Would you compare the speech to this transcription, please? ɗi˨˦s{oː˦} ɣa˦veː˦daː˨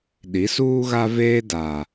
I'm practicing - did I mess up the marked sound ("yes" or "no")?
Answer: yes